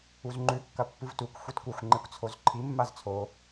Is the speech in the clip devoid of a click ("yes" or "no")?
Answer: no